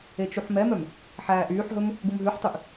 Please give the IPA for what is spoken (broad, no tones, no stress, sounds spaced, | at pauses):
e t͡ʃ u ħ m ɛ m œ m | ħ æː ʔ yː ħ ɦ ɵ m | ɡ u m ɦ ʉ ħ tˤ y ʔ